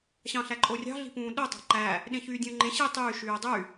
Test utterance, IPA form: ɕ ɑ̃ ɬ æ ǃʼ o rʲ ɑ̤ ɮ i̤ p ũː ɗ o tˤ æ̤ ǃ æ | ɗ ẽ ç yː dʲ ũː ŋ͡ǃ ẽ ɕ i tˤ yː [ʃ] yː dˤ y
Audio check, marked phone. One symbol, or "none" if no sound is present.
ʃ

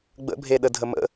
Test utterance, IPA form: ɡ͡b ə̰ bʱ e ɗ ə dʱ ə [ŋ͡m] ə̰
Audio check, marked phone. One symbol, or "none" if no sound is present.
m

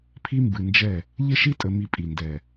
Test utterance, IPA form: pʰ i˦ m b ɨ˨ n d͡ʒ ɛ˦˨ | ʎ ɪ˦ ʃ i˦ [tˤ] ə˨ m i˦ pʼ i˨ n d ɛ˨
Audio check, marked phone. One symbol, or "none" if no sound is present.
tʼ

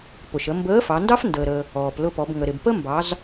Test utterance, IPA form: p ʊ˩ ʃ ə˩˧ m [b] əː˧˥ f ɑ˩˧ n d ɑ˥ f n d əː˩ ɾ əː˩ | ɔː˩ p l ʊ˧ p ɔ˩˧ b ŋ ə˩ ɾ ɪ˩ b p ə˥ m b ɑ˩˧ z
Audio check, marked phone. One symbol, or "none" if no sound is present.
b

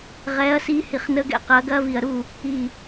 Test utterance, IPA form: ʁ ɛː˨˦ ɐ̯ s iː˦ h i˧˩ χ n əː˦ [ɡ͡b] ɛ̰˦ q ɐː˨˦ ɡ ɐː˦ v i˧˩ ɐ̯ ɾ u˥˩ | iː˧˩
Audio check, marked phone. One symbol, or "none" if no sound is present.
ɡ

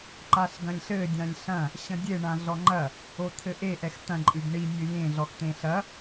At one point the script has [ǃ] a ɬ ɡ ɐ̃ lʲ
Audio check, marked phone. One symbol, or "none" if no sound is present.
ǃ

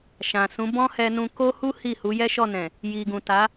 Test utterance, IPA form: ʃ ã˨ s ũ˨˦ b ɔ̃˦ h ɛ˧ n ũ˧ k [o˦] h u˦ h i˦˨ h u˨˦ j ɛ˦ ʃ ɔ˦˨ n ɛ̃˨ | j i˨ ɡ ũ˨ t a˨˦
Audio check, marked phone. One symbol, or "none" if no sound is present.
o˦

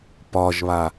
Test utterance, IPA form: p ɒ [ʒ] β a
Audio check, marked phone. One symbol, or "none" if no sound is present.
ʒ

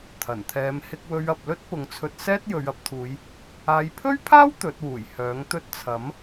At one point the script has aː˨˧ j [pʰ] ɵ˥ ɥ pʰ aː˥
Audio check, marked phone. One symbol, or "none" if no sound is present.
pʰ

